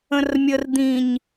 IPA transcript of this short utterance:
ə̃rmʲər d̪ĩɲ

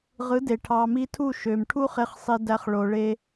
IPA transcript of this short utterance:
ʁɯ˨˦de˨ ʈʰɑ˧ mi˧tʰu˦˨ʃø˨m ʈʰu˦χe˧χsˤi˧dæ˧χ ɭo˧ɭe˦

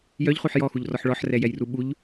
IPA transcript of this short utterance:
jœʎχuħ jɔxuʎrɔħ ɭɔħrɛjɛjru ɓuʎ

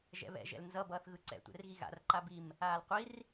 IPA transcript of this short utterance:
ʒɛ̰βɛ̰ ʒɛ̰lnzʌ bʌːθɣɯǀɛ̰ tʷɛ̰rɣiɣa̰r ǃabim | aːlqʷir

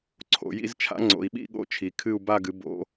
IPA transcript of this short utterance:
ǀʰo̰˩˧jḭ˥˧z t͡ʃʰa̰˧˥ŋ͡ǀo̰˩˧i̯ɓḭ˥˧ ɠo̰˥˧t͡ʃʰi˩˧kʰɨ˥˧u̯ ba˥˧ɡɨ˩˥ bo̰˧˥

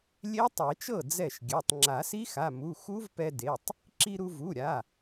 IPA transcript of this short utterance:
lʲe˦˥ tˤe˨˩˦t͡ʃɤ˥˩ d͡zɛ˥˩ʃɡʲɛ˩˧˩tˤ ŋ͡ǁa˨˩˦si˦˥xa˩˧˩mu˩˧˩ xu˦˥vpɛ˧de˩˧˩tˤ | ǁi˧ɾu˧vu˩˧˩ɾʲa˩˧˩

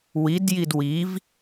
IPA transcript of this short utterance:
widjid wiv

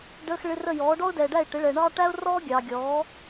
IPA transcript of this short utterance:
ɖəː˧˥˧xɭɪ˧˥˧rə˥˩ jɔː˩˥ɖɔ˥ʊ̯dɛː˨ɖæ˥˩ɪ̯ ʈɪ˩˥ɭɛ˨ɳɑː˥ ʈæ˥ʊ̯rɔː˥ ɡʲɑː˨ ɡʲɔː˩˥

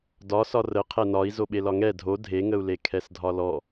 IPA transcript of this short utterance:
dɒsɒ rə qʰɛnɒi̯ zoɓelɒŋɛ dʱo dʱeŋəu̯le kʰɛsdʱɒlɔ

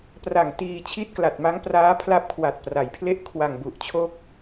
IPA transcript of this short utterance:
pra˨˩ŋtiː˧t͡ɕʰi˦˥t̚ kla˨˩t̚ ma˦˥ŋpraː˦˥pʰla˦˥p̚kʰwa˨˩t̚ pra˩˦jpʰle˦˥ʔkʰwa˨˩ŋ bu˨˩ʔt͡ɕʰo˦˥k̚

